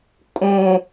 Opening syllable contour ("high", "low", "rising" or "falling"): low